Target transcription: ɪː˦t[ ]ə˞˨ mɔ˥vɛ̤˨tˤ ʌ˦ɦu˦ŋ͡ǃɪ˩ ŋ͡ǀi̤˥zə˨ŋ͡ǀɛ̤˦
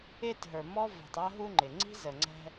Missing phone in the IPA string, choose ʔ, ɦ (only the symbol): ɦ